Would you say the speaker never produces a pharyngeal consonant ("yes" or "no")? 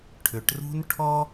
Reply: yes